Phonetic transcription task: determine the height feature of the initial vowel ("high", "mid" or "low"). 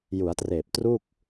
high